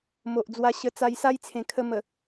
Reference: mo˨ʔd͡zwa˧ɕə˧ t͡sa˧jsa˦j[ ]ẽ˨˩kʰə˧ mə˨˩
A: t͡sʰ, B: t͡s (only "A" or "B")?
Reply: A